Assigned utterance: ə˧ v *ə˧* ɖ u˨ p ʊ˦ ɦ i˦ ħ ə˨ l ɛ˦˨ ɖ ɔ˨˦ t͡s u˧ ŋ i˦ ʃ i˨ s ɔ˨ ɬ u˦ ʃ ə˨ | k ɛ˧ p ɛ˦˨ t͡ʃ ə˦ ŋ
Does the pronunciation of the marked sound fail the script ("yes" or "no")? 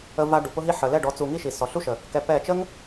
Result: yes